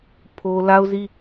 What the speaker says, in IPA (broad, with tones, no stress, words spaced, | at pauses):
pʰo˦ la˦ʊ̯zi˦